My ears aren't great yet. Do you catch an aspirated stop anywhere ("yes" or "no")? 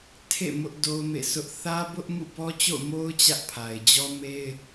yes